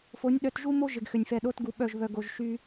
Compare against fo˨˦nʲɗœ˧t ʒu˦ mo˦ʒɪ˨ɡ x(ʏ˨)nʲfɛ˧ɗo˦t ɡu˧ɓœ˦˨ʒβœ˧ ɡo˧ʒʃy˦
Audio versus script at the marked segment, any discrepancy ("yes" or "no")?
no